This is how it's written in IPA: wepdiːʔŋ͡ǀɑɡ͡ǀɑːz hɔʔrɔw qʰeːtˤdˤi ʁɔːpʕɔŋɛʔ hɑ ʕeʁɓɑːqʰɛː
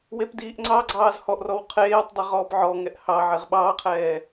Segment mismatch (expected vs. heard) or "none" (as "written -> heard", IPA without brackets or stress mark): none